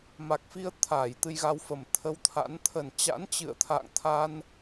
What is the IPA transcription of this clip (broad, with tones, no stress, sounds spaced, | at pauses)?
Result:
m a˨˩ k̚ f i˧ ə̯ t̪ʰ aː˧˩ j t̪ ɨ˧ j ɣ a˧ w f ə˨˩ m t̪ʰ ə˧ w t̪ʰ a̰˧˥ n t̪ʰ ə˨˩ n t͡ɕ a̰˧˥ n t͡ɕ ɨ̰˧˨ ə̯ t̪ʰ a̰ː˧˨ ŋ t̪ʰ a˧ n